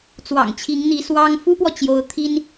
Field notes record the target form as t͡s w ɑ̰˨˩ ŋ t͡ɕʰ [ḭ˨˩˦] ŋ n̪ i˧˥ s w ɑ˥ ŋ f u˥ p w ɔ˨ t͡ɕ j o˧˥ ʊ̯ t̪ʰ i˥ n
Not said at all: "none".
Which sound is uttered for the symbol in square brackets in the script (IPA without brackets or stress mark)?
i˧˥